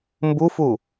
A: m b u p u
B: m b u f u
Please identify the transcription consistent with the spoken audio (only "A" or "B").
B